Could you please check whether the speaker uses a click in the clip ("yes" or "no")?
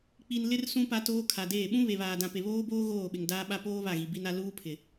no